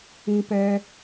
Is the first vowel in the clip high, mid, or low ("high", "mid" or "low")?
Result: high